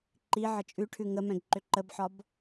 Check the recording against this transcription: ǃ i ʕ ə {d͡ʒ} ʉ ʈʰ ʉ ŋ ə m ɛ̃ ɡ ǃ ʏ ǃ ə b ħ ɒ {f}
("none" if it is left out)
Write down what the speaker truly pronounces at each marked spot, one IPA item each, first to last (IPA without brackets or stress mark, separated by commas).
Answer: t͡ʃʼ, b